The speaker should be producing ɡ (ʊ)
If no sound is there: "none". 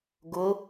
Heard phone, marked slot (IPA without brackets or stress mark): ʊ